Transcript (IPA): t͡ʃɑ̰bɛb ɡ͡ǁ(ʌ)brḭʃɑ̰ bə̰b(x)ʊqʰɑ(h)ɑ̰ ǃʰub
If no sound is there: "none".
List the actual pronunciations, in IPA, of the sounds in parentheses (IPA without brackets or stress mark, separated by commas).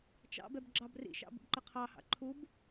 ɑ, ǃ, h